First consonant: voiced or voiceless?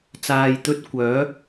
voiceless